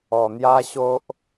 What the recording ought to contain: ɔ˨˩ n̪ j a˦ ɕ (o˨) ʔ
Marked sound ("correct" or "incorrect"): incorrect